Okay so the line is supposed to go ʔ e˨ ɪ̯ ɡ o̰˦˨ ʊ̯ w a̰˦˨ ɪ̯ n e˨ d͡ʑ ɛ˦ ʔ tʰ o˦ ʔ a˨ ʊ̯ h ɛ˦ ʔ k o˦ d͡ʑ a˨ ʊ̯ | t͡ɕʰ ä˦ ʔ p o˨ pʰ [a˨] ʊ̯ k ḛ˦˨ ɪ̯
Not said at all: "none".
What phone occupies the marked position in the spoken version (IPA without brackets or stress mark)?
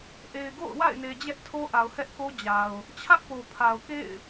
a˨